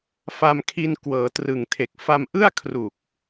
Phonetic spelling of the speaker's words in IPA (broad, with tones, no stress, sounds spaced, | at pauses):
f a˧ m kʰ i˧ n k w ɤː˩˦ t r ɯ˨˩ ŋ tʰ e˨˩ k̚ f a˧ m ʔ ɯ˥˩ a̯ kʰ r u˨˩ k̚